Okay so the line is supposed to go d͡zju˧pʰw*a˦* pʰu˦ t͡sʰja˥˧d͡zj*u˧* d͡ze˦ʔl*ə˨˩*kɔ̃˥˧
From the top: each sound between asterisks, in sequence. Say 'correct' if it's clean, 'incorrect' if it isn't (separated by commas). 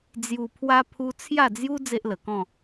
correct, incorrect, correct